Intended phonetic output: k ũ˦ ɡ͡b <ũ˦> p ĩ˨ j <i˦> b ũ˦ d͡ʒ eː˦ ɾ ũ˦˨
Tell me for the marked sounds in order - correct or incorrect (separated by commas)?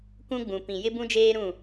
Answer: incorrect, incorrect